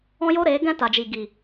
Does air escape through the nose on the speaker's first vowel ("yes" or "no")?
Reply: yes